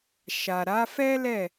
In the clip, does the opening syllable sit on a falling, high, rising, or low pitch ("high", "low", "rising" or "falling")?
low